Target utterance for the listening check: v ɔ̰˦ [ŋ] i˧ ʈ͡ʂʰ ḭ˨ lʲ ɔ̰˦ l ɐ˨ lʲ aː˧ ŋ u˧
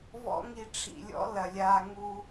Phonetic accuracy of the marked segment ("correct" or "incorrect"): correct